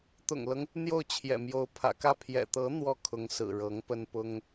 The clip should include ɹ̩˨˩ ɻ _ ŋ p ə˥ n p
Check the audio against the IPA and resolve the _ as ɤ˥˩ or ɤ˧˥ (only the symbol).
ɤ˧˥